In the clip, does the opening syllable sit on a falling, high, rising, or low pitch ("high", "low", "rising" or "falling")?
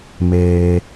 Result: low